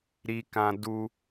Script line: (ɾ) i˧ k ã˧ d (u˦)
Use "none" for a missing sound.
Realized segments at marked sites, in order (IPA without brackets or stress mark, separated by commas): ɾ, u˦